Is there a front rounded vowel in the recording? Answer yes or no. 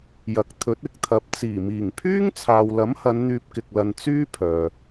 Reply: yes